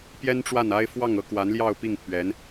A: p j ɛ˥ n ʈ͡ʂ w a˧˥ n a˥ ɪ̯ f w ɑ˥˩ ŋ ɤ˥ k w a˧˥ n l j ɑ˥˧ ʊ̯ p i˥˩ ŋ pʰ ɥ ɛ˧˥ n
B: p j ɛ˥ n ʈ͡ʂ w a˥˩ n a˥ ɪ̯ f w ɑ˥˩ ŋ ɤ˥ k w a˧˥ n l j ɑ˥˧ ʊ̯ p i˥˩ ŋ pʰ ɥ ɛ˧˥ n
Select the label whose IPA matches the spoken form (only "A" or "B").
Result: B